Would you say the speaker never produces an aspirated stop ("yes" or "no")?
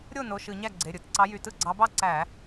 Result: yes